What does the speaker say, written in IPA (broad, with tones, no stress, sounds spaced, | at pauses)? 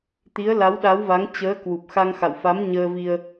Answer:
t̪ i˨˦ ə̯ l a˨˦ w ɗ a˨˦ w v a˨˦ ŋ t͡ɕ əː˨˦ k w u˨˩ p̚ x a˧ ŋ x a̰˧˨ w f a˨˦ m ɲ əː˧ v i˧ ə̯